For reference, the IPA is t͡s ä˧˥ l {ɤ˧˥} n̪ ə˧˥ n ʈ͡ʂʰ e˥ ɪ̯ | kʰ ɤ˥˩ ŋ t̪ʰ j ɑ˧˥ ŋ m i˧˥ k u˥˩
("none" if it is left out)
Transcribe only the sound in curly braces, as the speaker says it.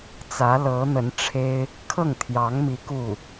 ɤ˧˥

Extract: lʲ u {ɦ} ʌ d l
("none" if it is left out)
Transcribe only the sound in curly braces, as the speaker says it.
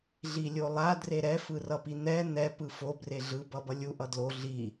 ʔ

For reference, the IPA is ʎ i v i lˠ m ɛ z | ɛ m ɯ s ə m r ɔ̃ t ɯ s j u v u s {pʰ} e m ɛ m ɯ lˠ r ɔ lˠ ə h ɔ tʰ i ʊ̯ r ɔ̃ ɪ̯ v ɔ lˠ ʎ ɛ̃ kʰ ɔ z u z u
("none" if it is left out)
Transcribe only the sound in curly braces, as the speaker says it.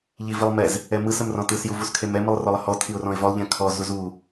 kʰ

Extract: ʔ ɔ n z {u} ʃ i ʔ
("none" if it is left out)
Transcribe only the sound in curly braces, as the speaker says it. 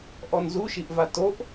u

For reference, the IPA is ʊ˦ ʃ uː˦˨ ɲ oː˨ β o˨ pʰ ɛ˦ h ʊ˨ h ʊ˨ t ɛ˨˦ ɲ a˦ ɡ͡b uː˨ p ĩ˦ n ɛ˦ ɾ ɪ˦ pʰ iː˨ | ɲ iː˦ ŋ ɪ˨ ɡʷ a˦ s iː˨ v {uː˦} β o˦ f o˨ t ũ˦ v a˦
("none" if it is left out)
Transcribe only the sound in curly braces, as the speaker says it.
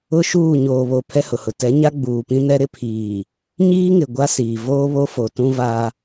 oː˦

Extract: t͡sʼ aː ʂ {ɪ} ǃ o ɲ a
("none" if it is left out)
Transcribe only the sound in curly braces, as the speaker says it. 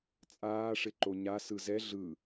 ɪ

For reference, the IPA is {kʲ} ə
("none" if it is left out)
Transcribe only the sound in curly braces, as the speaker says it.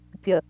kʲ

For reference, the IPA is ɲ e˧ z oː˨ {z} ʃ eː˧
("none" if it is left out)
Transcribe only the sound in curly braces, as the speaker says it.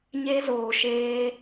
none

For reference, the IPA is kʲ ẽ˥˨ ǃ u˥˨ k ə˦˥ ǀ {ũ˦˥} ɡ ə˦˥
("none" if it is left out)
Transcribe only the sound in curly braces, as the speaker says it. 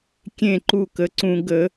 ũ˦˥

